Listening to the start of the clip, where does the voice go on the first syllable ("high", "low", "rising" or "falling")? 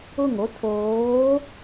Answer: falling